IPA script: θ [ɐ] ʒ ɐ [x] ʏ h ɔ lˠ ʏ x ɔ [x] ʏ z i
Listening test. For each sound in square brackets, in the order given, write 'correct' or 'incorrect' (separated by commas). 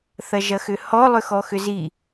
correct, correct, correct